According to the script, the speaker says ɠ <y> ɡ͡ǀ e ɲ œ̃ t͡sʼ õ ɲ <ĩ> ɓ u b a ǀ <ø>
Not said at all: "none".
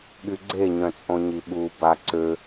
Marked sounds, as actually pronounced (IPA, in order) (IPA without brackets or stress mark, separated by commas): y, i, ø